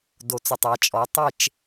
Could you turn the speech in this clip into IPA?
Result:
d o˨ t͡s ʏ˨ tˤ a˨ t͡ʃʼ ɔ˨˦ tˤ e˦˨ t͡ʃ

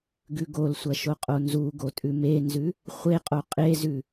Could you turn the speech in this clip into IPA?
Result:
ɡ ʉ ɡ o l sʷ ɐ ʃ o qʼ o n z u ɡ o tʼ ʉ m e n z ʉ | χʷ e qʼ o qʼ e z ʉ

